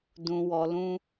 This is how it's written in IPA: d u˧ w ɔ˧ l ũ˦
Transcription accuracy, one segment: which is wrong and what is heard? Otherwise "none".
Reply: u˧ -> ũ˧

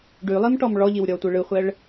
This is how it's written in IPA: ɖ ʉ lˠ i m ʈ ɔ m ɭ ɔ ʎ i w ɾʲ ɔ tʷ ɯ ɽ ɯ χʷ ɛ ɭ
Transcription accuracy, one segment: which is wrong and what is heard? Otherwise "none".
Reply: ɽ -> ɭ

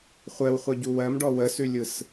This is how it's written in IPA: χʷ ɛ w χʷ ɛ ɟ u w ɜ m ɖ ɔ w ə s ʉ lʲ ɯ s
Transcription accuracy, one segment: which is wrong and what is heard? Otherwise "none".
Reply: none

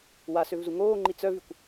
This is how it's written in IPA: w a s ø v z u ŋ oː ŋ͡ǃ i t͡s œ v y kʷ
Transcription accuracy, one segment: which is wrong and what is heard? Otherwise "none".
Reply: none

